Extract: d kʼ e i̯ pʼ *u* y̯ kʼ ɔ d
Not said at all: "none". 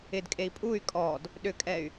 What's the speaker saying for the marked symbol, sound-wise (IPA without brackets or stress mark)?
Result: u